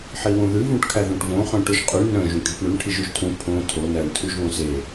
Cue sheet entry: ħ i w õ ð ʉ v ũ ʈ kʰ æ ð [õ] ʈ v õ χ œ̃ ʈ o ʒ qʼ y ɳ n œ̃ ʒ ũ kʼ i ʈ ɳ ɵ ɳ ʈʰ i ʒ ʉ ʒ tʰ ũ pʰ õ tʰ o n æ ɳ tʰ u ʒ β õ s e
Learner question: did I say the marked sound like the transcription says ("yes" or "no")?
yes